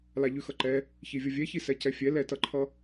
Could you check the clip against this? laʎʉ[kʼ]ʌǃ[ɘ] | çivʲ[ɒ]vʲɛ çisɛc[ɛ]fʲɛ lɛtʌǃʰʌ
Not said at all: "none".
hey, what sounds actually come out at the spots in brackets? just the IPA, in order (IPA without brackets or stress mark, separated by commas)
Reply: x, ɛ, ʌ, ɛ